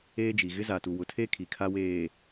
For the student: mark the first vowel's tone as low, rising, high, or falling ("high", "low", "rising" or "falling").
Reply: high